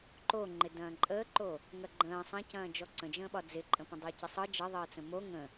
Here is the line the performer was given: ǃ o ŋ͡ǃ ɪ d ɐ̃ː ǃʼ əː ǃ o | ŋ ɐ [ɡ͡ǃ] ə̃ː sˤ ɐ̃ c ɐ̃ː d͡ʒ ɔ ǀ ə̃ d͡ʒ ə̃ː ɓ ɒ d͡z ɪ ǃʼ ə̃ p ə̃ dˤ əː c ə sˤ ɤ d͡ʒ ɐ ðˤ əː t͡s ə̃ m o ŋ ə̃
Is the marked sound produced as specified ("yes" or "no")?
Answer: yes